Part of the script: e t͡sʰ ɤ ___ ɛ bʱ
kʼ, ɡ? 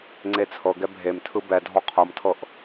ɡ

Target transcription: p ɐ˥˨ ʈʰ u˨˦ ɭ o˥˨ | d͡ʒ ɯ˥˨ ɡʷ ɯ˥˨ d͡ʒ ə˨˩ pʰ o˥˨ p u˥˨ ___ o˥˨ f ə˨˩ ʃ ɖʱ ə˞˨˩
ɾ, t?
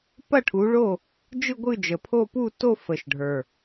t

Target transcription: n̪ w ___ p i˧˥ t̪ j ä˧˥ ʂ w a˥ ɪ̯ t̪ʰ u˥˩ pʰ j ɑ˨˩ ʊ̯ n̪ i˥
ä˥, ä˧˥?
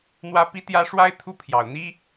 ä˧˥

